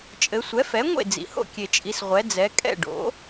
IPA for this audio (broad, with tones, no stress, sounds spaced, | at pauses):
t͡ʃʼ ɘ˩˧ sʷ ɛ˩˥ f ɛ˩˥ ŋʷ ḛ˥˩ d͡z ḭ˩ h o̰˥˩ kʲ e˩ t͡ʃʼ i˩˧ s ʁʷ ɛ˩˧ d͡z ɛ˩˧ kʼ ɛ̰˥˩ ɖ o̰˩˥